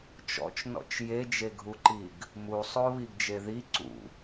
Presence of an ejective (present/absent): absent